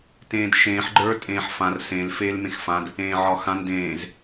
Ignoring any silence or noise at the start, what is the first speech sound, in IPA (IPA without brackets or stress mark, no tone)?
t